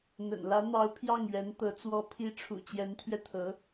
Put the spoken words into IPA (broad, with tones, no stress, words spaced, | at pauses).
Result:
n̪ə̰˨˩nlä˧˥n̪ɑ˧˥ʊ̯ pʰjɑ˥˩ŋɥɛ˧˥nt̪ɤ˧˥ t͡swɔ˧˥pʰi˧˥ʈ͡ʂʰṵ˨˩ t͡ɕjɛ˧˥nt̪ʰɥɛ˧t̪ʰɤ˧˥